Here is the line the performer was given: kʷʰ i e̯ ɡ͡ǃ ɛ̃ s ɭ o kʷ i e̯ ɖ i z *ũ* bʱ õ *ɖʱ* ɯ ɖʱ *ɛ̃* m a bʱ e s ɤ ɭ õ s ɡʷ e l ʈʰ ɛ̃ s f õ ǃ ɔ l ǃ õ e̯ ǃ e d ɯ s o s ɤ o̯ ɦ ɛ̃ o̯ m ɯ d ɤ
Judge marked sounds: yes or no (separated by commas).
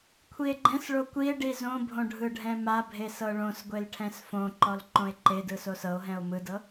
no, yes, yes